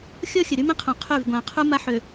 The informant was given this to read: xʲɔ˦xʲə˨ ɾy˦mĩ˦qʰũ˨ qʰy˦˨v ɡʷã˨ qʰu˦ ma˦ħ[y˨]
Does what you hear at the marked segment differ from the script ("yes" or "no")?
yes